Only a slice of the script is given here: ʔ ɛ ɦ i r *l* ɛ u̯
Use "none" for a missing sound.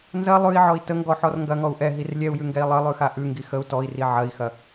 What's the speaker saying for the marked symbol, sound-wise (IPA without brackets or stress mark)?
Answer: lʲ